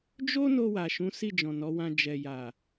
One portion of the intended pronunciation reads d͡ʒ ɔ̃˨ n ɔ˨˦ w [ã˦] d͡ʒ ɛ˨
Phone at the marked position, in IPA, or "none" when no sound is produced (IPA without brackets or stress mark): ã˧